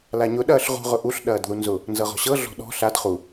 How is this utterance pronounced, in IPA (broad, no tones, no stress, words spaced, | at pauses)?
laɲʊ ɗɐːɬʁṳ ʁʊʔuɬ ɗɐːdðunzʊ | nzɤʁɔ̤ɕɤ ɮɔ̤ɗɔ̤ ɬad χu